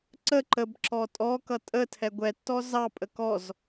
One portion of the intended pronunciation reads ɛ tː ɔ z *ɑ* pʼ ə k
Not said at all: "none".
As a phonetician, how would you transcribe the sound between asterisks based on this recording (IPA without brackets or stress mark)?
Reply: ɑ